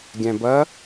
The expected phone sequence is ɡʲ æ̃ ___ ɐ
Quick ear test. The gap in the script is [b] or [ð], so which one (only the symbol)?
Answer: b